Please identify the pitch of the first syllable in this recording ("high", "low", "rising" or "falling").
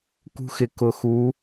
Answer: high